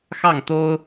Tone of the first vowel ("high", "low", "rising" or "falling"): falling